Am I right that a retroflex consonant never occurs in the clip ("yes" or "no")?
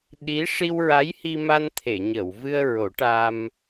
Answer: no